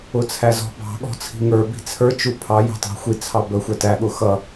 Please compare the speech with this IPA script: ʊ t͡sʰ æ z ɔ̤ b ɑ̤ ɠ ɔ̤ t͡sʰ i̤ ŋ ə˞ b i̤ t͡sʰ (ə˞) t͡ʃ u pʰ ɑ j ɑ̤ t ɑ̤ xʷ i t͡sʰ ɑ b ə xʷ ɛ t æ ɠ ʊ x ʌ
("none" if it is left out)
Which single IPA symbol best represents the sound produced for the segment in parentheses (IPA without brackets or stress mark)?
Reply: ə˞